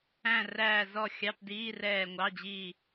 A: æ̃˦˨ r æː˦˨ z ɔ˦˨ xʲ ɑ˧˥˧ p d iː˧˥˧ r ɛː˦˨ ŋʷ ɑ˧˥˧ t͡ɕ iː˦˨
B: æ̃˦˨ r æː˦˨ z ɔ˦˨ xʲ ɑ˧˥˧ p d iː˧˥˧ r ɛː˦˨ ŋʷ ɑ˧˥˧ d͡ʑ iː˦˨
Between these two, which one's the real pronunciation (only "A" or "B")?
B